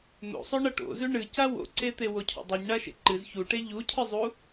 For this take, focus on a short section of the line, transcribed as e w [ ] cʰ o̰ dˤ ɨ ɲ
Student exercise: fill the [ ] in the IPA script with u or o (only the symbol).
o